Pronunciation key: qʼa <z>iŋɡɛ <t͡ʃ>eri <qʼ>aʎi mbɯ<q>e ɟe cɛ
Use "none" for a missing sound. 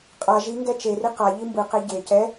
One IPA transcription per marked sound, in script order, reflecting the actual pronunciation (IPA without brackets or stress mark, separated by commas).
ʒ, t͡ʃ, q, q